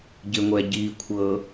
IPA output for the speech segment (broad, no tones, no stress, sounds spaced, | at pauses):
ɟ ɪ ŋʷ ɛ ɟ i kʷʰ ɤ